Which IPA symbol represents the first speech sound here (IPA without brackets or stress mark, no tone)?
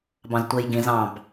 b